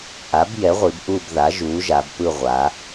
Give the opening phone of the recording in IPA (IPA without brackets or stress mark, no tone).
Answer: ʔ